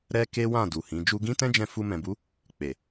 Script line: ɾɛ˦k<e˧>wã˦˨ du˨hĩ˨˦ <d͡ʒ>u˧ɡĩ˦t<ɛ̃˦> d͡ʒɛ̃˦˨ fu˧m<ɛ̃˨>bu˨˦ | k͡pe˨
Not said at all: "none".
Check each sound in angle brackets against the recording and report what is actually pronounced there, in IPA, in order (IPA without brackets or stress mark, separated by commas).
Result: e˦, d͡ʒ, ɛ̃˦, ɛ̃˨